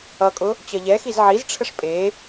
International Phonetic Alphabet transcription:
ʌ kʼ ʊ | t͡ɕ ʌ ʎ ɛ x i z ʕ i z ʈ͡ʂʰ ə ʂ pʼ e

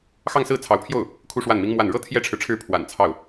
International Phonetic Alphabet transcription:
x ɑ˥˧ ŋ s ɹ̩˥˩ t͡sʰ ɑ˧˥ ʊ̯ pʰ j o˥˩ ʊ̯ | kʰ u˥ ʂ w a˥˩ n m i˥ ŋ m w a˥˩ n ɻ ɤ˥ t̪ʰ j ɛ˥ ʈ͡ʂʰ ɻ̩˨ ʈ͡ʂʰ ɻ̩˥˩ pʰ w a̰˨˩ n t͡sʰ ɑ˥˩ ʊ̯

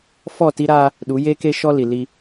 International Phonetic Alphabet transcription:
f ɔ˦˨ t i˦ ɾ aː˦ | ɗ u˨˦ j e˦ k e˦ ʃ ɔ˦ l i˨ l i˦

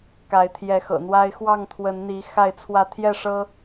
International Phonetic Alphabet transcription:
k a˨˦ ɪ̯ t̪ʰ j ɛ˨˦ x ɤ̰˨˩ n̪ w a˦ ɪ̯ x w ɑ˥˨ ŋ t̪ʰ w ə˨˦ n n̪ i˨˦ x a˥˨ ɪ̯ t͡sʰ w ä˥˨ t̪ʰ j ɛ˥˨ ʂ ɤ˦

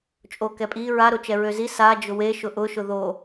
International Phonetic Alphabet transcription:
t͡ʃʼ o k ɛ pʼ i ɹ a ɾ o t͡ʃ ɛ ɹ ø z i s a d͡ʒ ʊ w e ʃ ʊ ʔ ʊ ʃ ʊ ð o

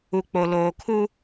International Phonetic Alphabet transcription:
u˨ k͡p o˨ l oː˨ kʰ u˦

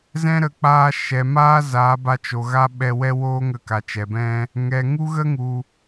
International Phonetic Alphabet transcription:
z ɛ̃˦ ɾ ə˨˦ k͡p aː˦ ʃ ɛ˨ m aː˦ z aː˨˦ b a˧ t͡ʃ o˨ ɣ a˦ ɓ ɛ˧ w ɛ˦ w oː˦ ŋ ə˧ k a˨ t͡ʃ ɛ˨ b ɛ̃˦ | ŋ ɛ˨ ŋ u˦ ɣ ə˦ ŋ u˨

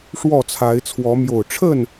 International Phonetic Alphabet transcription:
ʂ w ɔ˥˨ t͡sʰ a˨˦ ɪ̯ t͡sʰ w ɔ˨˦ m j o˨˩ ʊ̯ ʈ͡ʂʰ ə˥˨ n

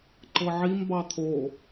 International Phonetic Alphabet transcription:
ǃ ɤ ʕ i m b ɑ t̪ʰ o

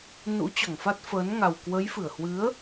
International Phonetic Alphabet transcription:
n ṵ˧˥ t͡ɕ ɔ˧˩ ŋ f a˦˥ t̚ f əː˨˦ n ŋ a˨˩ w k w ə˨˦ j f ɨ˧˩ ə̯ h w ɨ˨˦ ə̯

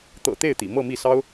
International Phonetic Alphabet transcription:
t̪ ɤ̰˨˩ t̪ e˥˩ ɪ̯ t̪ ḭ˨˩ m ɤ˥˧ m i˥˩ s ɑ˥ ʊ̯

